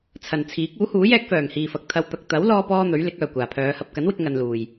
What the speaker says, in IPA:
t͡sʰɐ˨˩nt͡sʰiː˨˥k̚ uː˨˥huː˨˥ jɛː˥k̚fœː˨˩ŋhiː˨fɐ˨k̚ t̪ʰɐ˧w t̪ɐ˨k̚t̪ɐ˨˥w lɔː˥pɔː˥n̪ɵ˨˥ɥ lɪ˨˥k̚œː˨˩kʷaː˨˩pʰœː˨˧ hɐ˨p̚kɐ˨˥nwɪ˧k̚ ŋɐ˧nluː˨˩j

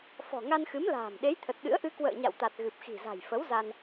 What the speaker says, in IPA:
fɔ̤˨˩ŋa˧nxɨ˨˦m la̤ː˨˩m ɗe˨˦jt̪ʰə˨˩t̚ɗɨ̰˧˥ə̯ʔɨ˧ kwə̰ː˧˨ɲa̰˧˨wt̪a˨˩t̚ ɣɨ˨˩p̚xi̤˨˩za̤˨˩j fə˨˦wza˧n

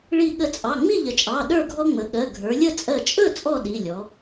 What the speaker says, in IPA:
ɭi˧˩ɠə˧˩t͡sʼɑ˩˧˩ ŋ͡mi˥˨ʎə˩˧t͡ʃʼɑ˩˧˩ ɗə˞˥˨ɡʱɔ˦ ŋ͡mə˩˧ɠɜ˩˧˩ ɡʱə˞˩˧lʲə˥˨ t͡sʼɜ˧˩t͡ʃʼɵ˥˨ t͡sʼɔ˥˨ɗi˩˧˩lʲɔ˩˧

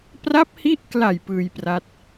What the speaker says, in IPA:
pra˦˥p̚hi˦˥ʔkla˨˩j pɯː˧jpra˦˥t̚

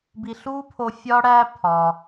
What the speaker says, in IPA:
bi˧ ɬuː˥pʰo˧ fʲɒː˥ ɽæː˥ pʰɒ˩

